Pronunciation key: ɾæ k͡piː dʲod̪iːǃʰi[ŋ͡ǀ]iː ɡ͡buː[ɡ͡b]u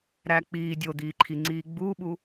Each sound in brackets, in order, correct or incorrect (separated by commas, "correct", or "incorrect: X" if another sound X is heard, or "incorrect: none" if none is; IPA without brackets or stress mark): correct, incorrect: ɓ